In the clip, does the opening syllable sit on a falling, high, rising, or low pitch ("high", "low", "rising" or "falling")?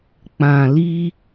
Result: low